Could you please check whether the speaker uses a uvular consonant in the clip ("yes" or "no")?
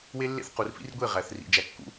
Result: yes